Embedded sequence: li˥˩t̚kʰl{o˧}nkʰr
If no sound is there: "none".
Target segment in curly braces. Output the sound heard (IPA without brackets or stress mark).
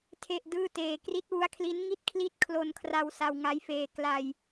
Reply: o˧